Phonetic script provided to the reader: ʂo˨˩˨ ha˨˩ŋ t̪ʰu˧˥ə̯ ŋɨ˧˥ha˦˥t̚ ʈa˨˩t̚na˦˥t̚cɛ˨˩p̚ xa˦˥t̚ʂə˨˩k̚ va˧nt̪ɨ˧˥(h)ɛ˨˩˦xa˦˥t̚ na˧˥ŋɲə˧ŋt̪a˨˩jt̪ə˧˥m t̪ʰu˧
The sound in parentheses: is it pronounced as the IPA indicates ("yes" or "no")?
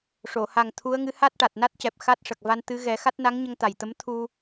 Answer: no